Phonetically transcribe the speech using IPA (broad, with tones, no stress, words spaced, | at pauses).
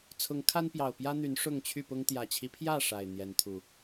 t͡sʰʊ˨˦ŋkʰa˦npjɑ˨˩ʊ̯pjä˦ n̪y˨˦n ʂʊ˥˨ŋt͡ɕʰy˥˨pʊ˦ŋ t̪jä˨˩t͡ɕʰi˦pʰjä˥˨ ʂa˨˩ɪ̯ n̪jɛ˨˦nt̪ʰu˨˩